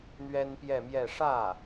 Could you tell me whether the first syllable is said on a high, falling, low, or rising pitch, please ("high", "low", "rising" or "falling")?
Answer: high